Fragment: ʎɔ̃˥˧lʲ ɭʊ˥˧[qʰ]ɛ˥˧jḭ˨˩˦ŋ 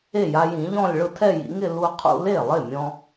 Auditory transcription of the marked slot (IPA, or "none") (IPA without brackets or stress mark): tʰ